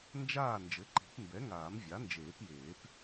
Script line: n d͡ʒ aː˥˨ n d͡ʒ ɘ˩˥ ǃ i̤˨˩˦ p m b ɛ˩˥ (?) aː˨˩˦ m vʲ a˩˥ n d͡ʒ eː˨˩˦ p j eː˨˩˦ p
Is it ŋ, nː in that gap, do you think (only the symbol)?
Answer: ŋ